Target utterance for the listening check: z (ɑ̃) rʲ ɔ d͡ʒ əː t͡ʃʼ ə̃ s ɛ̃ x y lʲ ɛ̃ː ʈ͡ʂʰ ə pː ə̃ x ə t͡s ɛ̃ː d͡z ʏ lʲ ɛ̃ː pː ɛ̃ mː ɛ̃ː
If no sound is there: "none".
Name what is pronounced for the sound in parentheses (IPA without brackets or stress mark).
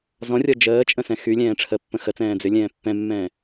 ɔ̃